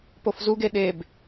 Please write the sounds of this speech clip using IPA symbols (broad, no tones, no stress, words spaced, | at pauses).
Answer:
pofzuɡe ɗeb